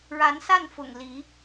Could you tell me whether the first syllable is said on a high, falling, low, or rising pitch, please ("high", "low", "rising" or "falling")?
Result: rising